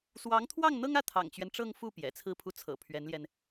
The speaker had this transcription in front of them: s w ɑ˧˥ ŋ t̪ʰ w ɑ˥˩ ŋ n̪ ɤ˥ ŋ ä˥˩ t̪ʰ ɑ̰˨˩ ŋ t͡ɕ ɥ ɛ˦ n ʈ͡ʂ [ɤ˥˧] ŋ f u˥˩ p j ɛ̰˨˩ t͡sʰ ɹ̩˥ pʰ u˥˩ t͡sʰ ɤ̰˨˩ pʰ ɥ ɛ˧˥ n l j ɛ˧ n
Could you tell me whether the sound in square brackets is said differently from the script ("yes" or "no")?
no